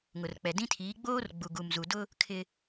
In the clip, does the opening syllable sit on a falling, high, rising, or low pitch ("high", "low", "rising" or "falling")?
low